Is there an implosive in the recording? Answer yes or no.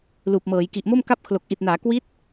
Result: no